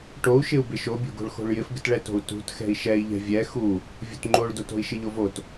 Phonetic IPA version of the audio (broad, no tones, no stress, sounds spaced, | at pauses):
ʈ o u̯ ʃ ɪ u̯ b ɪ ʃ o bʲ o̤ ɡ o̤ ɭ x o̤ ɭ j ɪ f ɡ ɪ t ɭ ɛ t o̤ u̯ t ṳ t x ɛ̤ i̯ ʃ ɛ i̯ ʎ ɛ̤ vʲ ɛ x u | vʲ o̤ t ŋ͡ǃ o ɭ d o t o̤ i̯ ʃ ɪ ʎ o v o t